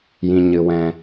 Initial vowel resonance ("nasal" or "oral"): nasal